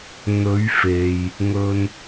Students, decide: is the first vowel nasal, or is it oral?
oral